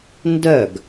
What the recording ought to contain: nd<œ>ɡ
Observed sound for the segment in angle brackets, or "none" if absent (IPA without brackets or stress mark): œ